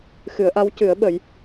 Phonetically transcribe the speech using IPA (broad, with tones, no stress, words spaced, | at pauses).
xɨ˨˩˦ə̯ʔa˧˥w cɨ˨˩˦ə̯ɓə˨˩˦j